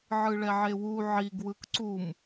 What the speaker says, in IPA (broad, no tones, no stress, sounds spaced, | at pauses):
ʕ ɯ ɭ ɛ ʕ e w u ʕ i ɡ w ɯ k ǀ u m